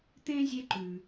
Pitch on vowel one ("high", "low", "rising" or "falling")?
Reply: high